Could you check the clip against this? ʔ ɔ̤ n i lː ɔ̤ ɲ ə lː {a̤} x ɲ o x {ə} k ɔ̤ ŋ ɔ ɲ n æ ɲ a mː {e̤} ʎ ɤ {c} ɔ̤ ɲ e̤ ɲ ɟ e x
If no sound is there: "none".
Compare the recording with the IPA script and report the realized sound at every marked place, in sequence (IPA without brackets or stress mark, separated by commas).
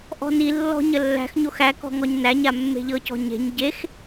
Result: æ̤, æ, e̤, c